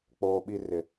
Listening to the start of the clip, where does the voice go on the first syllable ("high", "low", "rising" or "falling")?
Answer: high